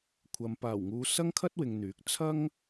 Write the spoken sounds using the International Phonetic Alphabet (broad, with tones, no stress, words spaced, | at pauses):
kʷʰɐ˨m paː˨˩wŋuː˨ sɐ˥ŋkʰɐ˥t̚wɪ˨ŋn̪yː˨˥k̚ t͡sʰɐ˥ŋ